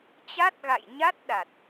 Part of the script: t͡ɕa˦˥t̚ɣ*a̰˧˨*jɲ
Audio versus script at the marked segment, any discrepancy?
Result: no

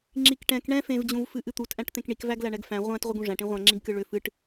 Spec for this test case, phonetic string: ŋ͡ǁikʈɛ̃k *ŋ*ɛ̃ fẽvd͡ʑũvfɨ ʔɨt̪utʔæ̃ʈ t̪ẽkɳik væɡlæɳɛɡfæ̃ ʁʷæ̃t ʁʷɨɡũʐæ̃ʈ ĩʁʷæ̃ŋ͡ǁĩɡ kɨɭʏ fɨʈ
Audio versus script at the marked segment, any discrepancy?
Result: yes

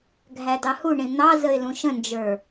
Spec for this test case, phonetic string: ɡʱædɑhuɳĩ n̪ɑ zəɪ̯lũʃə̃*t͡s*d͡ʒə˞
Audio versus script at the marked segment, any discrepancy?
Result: yes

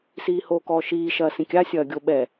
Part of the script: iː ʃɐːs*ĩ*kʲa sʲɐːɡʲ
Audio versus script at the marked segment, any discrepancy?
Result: no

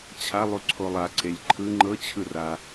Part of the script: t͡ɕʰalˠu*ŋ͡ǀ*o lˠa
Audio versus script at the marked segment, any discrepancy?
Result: yes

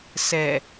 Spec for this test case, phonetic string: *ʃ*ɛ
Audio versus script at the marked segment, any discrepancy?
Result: yes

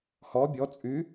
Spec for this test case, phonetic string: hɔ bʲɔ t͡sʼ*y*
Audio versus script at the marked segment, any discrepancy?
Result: no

